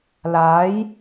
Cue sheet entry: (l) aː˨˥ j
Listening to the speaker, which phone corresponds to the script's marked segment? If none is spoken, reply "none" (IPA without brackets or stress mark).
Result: l